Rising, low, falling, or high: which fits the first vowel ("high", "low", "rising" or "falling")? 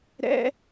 high